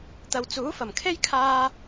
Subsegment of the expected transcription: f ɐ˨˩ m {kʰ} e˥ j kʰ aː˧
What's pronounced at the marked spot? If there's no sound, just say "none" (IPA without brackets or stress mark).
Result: kʰ